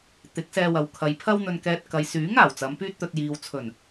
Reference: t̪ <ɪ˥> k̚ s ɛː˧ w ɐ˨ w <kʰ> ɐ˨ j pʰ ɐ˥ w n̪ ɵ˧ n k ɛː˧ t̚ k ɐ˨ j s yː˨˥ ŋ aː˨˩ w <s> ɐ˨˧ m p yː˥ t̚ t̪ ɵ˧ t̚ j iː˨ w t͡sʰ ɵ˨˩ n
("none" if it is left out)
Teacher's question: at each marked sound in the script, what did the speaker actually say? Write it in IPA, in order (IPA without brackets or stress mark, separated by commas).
ɪ˨˥, kʰ, t͡s